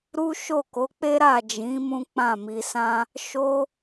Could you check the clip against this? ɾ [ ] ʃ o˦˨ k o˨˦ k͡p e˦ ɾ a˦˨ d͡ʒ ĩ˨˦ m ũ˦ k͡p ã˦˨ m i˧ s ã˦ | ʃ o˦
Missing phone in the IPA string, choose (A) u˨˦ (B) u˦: B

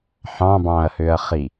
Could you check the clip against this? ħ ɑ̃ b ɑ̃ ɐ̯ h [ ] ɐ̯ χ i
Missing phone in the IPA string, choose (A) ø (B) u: A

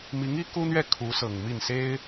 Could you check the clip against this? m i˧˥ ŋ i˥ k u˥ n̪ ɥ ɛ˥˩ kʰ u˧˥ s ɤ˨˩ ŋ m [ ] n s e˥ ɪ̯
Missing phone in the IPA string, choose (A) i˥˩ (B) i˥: A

